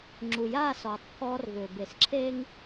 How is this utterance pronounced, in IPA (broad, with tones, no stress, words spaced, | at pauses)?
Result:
ŋ͡ǁu˨jaː˦˨sɔː˨tˤ pʰɔː˦rvʏː˨ be˨sǁʰe˦ŋ